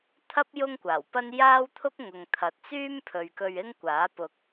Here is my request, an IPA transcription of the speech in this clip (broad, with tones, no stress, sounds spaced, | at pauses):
t̪ʰ ɐ˥ p̚ j ʊ˥ ŋ kʷ aː˨˩ w p ɐ˥ n j aː˥ w t̪ʰ ʊ˥ k̚ ŋ ʊ˨ ŋ t̪ʰ ɐ˨ t̚ t͡s yː˥ m pʰ ɵ˨ ɥ k ɵ˧ ɥ ɪ˥ ŋ kʷ aː˨˥ p ʊ˧ k̚